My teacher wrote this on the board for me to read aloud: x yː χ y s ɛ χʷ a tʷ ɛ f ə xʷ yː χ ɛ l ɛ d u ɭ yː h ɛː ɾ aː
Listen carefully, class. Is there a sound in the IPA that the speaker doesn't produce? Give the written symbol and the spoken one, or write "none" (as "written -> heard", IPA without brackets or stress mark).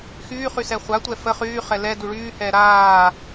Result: xʷ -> χ